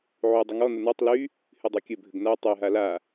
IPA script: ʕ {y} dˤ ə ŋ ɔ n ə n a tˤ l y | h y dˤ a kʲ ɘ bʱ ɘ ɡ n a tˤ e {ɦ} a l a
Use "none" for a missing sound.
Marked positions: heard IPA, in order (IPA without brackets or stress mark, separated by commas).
y, ɦ